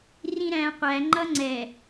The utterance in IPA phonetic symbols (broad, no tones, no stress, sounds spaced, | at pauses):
r ĩ ɾ æ̃ qʷ æ ŋ͡ǃ ʌ ŋ͡ǀ ɛ